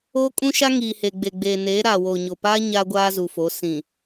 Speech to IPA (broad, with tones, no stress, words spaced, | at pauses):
oː˦kʼũ˦ʃa˦ ŋiː˨he˨ɡ͡be˨ɡ͡beː˨ neː˨˦ ɾaː˨woː˨ɲo˨paː˦ ɲaː˦ɡʷaː˦zu˨fo˨˦ sĩ˨